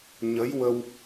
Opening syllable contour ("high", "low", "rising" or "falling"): rising